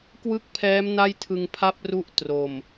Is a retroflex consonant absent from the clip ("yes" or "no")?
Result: yes